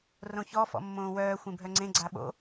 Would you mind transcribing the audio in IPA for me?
rõçɔ fɔ̰mːõːwœː xʷẽbʱœŋ͡ǀẽ ɡ͡ǀaɓo̰

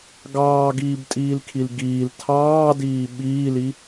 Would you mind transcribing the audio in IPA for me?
ɡɑːɡiːbtʼiːlkʰil ɡiːl tʰɑːdiː ɓiːli

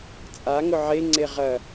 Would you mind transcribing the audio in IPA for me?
t͡sʼaŋʊ ʕeŋ͡ǀe ʁɐ

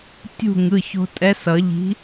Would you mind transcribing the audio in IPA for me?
tʲṳ˥˨ ŋɯ˩˧˩ço̤˧ tʼɛ˧˥sʌ˨˩˦ʎi̤˧˥

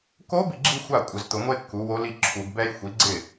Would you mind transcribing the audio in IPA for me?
ko˧˥ bi˥˩ɡ͡ǁi˥˧ xʷa˥˩kʷʼɪ˨˩˦zt̪ʊ˨˩˦ŋʷe˥˧ kːu˩˥wo˧˥li˥˩ ǁʰu˨˩˦ɡbɛ˥j xʷi˩˥ɡ͡ǀɪ˥˩

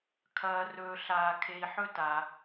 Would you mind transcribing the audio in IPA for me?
kʰɐː˨rɵː˨ ɬaː˨kʰe˨i̯ħɵ˦ta˩

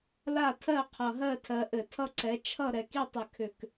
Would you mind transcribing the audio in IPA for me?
la˥˨tʰɜ˥˨ qʰʌ˨˩ɦɜ˥˨ tʰɜ˨˦ʔɘ˧˩˧tʰʌ˥˨ǀɛ˨˦ t͡ʃʰʌ˥˨ ɾɛ˨˩ki˥˨tˤʏ˨˩ kʰʏ˨˩k

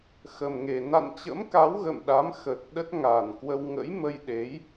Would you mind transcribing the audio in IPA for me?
xə˨˩mŋe˨˩ na̰˧˨n t͡ɕə̰˧˥mka˨˦w ɣə̰ː˧˨mɗa˨˦m xə˨˩t̚ ɗə˦˥t̚ŋaː˨˩nkwə˧w ŋə̰˧˥jmə˧jɗe˨˦j

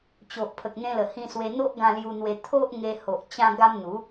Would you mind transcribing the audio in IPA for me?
t͡ɕo˨ʔpʰə˨k̚n̪ẽ˧lə˨˩ hĩ˧swe˧n̪o˦ʔ ɡã˧lju˧n̪we˧ t̪ʰo˦ʔŋe˧ho˨ʔ t͡ɕã˧ɡa˧m n̪u˨˦

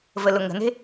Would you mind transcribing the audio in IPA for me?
vəlʊŋə̤ne̤

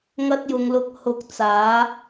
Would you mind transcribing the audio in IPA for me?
ŋɐ˧t̚jʊ˨ŋlʊ˨˥k̚hʊ˨˥k̚ t͡saː˨˥

